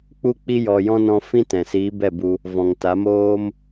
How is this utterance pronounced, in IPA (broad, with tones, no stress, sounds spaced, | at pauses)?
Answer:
k͡p u˦ k͡p i˧ j ɔ˨ j ɔ̃˧ n ɔ̃˧ f ĩ˦ t ɛ̃˨ s iː˨˦ b ɛ˦˨ b u˧ | v ɔ̃˨ ŋ t a˨˦ m oː˦ m